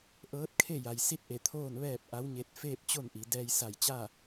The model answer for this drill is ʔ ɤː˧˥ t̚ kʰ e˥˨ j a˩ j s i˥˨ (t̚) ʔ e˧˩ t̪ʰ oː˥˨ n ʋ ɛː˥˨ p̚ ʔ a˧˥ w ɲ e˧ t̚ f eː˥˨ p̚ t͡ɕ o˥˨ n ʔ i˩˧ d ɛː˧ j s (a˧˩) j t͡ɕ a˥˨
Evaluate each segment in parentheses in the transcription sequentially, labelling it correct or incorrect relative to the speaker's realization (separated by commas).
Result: correct, correct